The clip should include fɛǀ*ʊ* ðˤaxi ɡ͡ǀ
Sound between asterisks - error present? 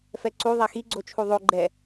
yes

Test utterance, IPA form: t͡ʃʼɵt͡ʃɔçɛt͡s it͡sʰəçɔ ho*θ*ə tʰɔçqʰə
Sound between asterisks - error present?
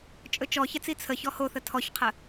no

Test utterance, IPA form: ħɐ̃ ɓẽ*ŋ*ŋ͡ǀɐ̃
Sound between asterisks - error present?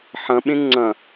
no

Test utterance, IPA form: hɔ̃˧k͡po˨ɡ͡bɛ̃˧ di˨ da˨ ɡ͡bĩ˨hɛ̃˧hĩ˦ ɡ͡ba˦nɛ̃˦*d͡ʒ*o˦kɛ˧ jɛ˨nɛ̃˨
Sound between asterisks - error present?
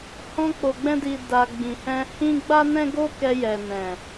yes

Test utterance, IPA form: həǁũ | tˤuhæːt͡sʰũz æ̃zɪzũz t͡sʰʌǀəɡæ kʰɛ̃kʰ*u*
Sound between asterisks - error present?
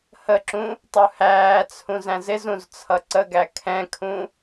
yes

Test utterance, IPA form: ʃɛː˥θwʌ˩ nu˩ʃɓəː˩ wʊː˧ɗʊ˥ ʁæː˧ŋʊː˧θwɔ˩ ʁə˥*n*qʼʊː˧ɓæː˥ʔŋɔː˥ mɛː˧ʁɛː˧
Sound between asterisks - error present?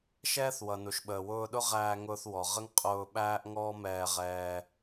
yes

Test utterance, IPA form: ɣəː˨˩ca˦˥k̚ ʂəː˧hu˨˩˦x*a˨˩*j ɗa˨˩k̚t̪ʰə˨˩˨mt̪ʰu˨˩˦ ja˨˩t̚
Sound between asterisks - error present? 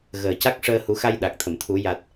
yes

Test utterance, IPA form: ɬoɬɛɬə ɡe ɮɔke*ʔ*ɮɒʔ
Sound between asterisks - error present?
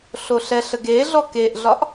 no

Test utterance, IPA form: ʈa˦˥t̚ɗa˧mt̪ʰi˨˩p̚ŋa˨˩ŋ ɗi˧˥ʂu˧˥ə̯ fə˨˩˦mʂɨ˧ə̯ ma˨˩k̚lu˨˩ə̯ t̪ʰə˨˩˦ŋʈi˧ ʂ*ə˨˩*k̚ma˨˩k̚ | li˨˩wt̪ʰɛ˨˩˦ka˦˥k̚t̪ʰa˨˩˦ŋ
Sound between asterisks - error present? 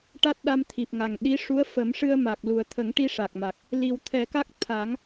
yes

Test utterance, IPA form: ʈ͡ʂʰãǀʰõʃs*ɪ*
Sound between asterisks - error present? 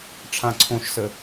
yes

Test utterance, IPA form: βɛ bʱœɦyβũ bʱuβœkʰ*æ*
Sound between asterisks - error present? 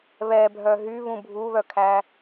no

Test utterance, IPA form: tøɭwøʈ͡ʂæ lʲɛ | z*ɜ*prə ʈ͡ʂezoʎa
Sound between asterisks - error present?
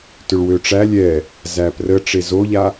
yes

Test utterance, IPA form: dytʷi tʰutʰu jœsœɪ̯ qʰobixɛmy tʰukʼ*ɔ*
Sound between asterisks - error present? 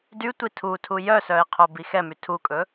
yes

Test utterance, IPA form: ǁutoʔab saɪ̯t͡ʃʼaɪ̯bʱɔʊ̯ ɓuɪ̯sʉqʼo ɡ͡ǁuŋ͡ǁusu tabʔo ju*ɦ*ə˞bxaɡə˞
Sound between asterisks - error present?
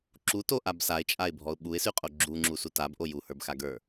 yes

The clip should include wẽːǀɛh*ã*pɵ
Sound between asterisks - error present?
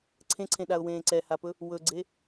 yes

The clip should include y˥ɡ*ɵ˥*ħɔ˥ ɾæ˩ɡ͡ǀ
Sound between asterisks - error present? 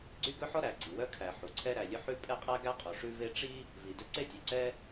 no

